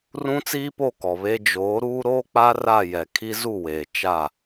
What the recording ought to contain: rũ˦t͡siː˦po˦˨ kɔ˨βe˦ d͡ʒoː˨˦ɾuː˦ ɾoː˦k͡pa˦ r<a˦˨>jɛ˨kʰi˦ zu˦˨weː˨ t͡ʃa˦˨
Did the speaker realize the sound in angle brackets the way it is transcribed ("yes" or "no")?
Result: yes